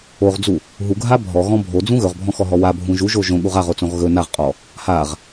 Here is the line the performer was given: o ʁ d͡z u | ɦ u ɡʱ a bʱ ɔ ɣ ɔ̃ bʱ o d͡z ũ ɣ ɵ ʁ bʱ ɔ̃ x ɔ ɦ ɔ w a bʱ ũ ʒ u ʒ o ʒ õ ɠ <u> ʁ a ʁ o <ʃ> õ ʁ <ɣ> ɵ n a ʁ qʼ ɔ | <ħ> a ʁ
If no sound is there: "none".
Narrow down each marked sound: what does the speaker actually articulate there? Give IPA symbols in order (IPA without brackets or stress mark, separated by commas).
u, t͡s, ɣ, h